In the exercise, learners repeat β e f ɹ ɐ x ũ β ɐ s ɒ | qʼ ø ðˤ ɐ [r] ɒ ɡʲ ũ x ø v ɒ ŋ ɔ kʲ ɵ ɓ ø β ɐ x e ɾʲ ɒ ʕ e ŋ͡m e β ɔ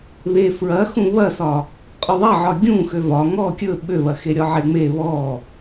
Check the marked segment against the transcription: incorrect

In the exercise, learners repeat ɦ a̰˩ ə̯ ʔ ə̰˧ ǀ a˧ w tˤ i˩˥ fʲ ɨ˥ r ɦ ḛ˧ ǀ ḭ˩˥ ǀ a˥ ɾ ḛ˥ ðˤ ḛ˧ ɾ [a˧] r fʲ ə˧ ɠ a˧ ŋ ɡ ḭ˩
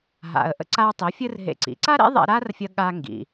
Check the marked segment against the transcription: incorrect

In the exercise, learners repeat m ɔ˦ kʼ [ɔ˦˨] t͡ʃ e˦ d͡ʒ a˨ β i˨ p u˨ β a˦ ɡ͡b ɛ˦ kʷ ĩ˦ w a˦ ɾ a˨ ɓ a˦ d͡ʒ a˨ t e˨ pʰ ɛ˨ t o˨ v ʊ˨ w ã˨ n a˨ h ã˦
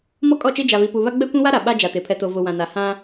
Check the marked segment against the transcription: correct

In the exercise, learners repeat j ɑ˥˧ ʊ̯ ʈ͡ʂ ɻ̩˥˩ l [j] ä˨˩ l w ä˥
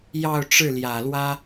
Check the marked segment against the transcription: correct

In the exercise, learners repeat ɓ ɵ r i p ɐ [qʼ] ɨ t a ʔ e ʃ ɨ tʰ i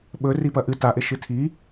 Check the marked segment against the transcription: incorrect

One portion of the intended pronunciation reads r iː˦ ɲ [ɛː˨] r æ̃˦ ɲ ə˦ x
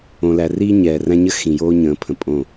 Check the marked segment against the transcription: correct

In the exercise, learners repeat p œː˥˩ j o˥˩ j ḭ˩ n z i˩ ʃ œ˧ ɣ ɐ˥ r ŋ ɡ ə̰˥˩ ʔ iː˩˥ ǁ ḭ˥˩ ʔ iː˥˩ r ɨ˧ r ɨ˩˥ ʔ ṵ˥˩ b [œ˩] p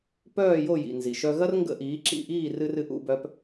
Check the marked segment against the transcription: incorrect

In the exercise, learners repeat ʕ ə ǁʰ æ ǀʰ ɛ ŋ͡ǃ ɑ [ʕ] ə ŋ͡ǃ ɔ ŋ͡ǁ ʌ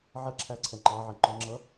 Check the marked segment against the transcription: correct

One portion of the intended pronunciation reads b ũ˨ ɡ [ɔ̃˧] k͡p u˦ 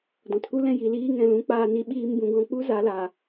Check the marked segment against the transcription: correct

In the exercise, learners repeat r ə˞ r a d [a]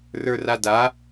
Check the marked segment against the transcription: correct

